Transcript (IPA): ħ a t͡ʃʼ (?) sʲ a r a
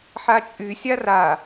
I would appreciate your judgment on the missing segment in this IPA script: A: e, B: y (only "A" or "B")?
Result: B